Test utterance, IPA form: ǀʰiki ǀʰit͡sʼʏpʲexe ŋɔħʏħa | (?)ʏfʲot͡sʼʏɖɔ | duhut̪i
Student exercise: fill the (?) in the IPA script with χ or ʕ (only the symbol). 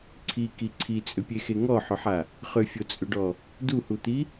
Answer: χ